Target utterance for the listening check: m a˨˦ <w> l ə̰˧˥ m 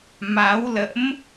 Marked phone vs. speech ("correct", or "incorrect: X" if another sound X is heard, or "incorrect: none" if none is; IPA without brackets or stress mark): correct